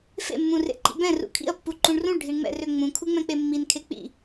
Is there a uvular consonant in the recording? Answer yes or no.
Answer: no